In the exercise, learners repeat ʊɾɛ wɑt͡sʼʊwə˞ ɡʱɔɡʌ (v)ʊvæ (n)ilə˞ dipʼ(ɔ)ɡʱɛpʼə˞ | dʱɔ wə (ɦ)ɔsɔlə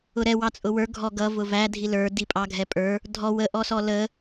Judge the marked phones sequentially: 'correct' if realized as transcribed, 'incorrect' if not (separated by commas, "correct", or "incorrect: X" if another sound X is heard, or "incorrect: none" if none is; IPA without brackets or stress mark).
correct, incorrect: dʱ, incorrect: ɑ, incorrect: ʔ